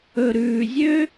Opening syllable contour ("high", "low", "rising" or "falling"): low